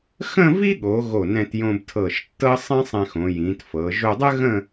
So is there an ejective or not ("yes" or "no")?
no